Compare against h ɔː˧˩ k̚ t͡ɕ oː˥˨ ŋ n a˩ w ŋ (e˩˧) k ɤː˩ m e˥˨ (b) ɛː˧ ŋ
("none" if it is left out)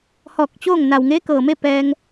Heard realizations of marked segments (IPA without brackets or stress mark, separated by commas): e˧˥, p